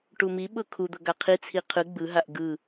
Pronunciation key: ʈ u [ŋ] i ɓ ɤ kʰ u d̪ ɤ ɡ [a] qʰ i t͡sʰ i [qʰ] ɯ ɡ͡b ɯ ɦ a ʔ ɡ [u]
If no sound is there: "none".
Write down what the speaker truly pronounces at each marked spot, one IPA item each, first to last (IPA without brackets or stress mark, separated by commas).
m, a, qʰ, ɯ